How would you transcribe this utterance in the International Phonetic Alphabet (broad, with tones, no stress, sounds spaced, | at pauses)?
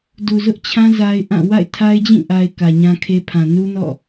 d u˨ z ʊ˦ ʔ t͡ɕʰ ã˦ z a˦ ɪ̯ ʔ ã˦˨ w a̰˦˨ ɪ̯ tʰ a˦ ɪ̯ d͡ʑ ĩ˦˨ ʔ a˨ ɪ̯ k ä˨ ɲ ã˦ kʰ e˦ pʰ ã˨ n u˦ n ɔ̰˦˨